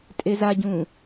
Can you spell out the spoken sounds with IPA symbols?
tʼ e z a ɟ ũ

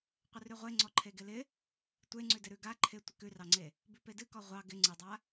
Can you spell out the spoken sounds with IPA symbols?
qʷ ɪ r ʉ ʁʷ e ŋ͡ǀ ɔ ǃʰ e ɡ ɪ l ɪ | tʷ e ŋ͡ǀ ʉ d ɪ ɾ ʉ ɡ a ǃʰ ɪ tʷ ɪ k ʉ r ɑ ŋ͡ǀ e | b ʉ p e d ɨ k ɔ ʁʷ ɑ ɡ ɪ ŋ͡ǀ ɨ dˤ a

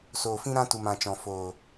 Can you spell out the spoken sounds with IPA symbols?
s oː˨ f ĩ˦ ɾ ã˦ t u˨ m ã˨ t͡ʃ ɔ̃˨ f oː˨

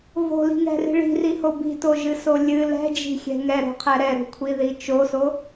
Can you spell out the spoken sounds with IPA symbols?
v o̤ l i̤ ŋ ɛ̤ r i̤ ɭ i̤ r i h o b i̤ t o ʒ ɨ s o lʲ ɨ l ɛ̤ d͡ʒ i̤ xʲ ɛ̤ ŋ ɛ ɾ o̤ qʰ ɛ ɾ ɛ ɾ o̤ kʷʰ i ð i t͡ʃ o s o

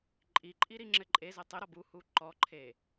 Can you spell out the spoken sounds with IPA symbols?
ǃʼ i ǃʼ i ɾ i ŋ͡ǁ ɘ ǃʼ e z ɘ tˤ ɘ ɾ ɔ b u h u ǃ ɔ ǃʰ e

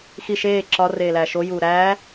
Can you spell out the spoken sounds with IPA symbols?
x i ʃ eː ǁ ɒ r eː l æː ʃ o j uː ɾ æː

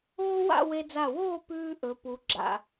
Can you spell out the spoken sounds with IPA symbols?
oː˥ w a̰˥˧ w e˧ d͡z a˧˩ w oː˥˧ p ʉː˥ ʔ ɵ˩˧ p u˩˧ ɡ͡ǁ a̰˧˩

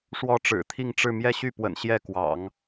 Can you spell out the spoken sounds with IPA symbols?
ʂ w ɔ˥˩ ʈ͡ʂ ɻ̩˨˩ t̪ʰ i˥˧ ŋ ʈ͡ʂ ɻ̩˥˧ m j ɛ˥˧ ɕ y˥˩ p w ə̰˨˩ n ɕ j ɛ˥˩ k w ɑ̰˨˩˦ ŋ

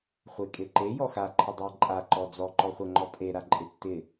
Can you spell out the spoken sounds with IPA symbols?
χʷ e kʼ e ǃ e j ɔ x a ǃʰ ɪ dˤ e ǃʼ a ǃ ɔ d͡z ɔ ǃ ɔ χʷ ɛ ŋ͡ǃ ɔ pʼ e ɾ a ǃʼ ɪ tː ɪ

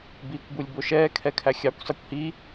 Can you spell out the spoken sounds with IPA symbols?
b iː kʷ b u lʲ b o ʃ ɛː kʰ ɛ kʰ æ xʲ ɑ kʷ sˤ i kʷ h i

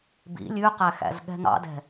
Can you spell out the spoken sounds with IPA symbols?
b ḭ lʲ ʉ q æ x æ̰ z ɠ ɛ̤ ŋ ɑ̰ d ɛ̤

